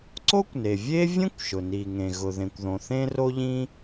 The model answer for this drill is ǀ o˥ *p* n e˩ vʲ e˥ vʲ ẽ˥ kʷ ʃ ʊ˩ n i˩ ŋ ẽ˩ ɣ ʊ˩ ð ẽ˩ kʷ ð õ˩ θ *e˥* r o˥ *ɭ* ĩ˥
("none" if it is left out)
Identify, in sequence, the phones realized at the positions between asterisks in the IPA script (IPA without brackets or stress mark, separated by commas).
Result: kʷ, ẽ˥, ʎ